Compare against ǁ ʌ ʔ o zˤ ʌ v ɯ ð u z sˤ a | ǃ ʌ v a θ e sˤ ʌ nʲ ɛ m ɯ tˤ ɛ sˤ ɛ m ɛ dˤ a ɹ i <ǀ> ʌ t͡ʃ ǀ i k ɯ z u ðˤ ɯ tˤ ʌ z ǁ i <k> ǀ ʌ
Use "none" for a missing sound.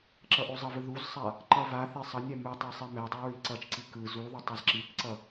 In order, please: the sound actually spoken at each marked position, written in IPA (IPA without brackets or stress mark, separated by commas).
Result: ǀ, k